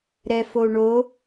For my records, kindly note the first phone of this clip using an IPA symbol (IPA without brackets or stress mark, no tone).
ɾ